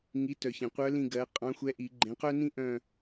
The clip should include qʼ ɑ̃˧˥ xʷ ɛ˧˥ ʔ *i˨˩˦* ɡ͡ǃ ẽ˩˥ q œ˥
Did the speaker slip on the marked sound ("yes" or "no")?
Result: no